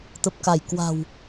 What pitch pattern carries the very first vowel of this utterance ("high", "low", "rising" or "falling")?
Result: low